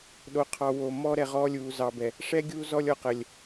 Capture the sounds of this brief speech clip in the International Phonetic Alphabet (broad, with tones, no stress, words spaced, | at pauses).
ɗo˨qʰɑ˨ wo˨ mɔ˦ɾɛ˨ʁɔː˦ lʲuː˨zɑ˨bɛ˨ | ʂɛ˦ ɡʲuː˦zɔ˦lʲ ɔ˨qə˨lʲ